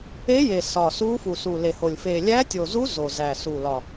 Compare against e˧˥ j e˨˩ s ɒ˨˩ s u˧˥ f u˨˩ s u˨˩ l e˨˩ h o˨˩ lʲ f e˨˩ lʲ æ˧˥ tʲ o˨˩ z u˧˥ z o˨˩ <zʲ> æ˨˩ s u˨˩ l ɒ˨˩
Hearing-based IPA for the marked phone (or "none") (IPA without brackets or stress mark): z